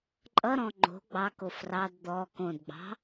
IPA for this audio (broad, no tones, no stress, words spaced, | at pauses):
ǃʼʌɾɔ̃ ŋ͡ǃo̤ ɡ͡bɑko frɑd d̪ɔ kõdɡ͡bɑ̤